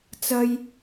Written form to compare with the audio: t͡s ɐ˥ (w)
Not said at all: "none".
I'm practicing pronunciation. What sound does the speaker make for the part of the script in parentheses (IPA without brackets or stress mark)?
j